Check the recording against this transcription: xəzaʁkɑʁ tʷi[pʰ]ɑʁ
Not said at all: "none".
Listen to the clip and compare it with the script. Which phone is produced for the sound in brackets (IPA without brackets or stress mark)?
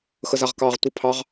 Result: pʰ